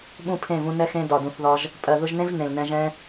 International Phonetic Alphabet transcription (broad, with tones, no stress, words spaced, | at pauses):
ɓũ˦˨pʰẽ˦˨vũ˧ nɛ˧xẽ˧ dɒ˨dũ˨θðɒ˧ʒ | pʼɜ˨ðʊ˧ʒnẽ˦v nẽ˨lnɛ̃˧ʒɛ̃˦